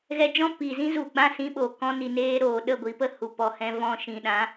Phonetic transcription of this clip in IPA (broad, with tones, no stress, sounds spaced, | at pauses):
ɣ ɛ˧ d͡ʒ ɔ̃˦ p i˨ z ĩ˦ z u˨ ɡ͡b ã˦˨ s ĩ˦ ɓ oː˨ k ɔ̃˦ n i˧ n eː˦ ɾ oː˨ ɗ ə˦˨ ɡʷ i˨˦ p ə˨˦ h u˨ p ɔ˧ h ɛ̃˦ v ɔ̃˧ ʃ ĩ˨ ɗ ã˨˦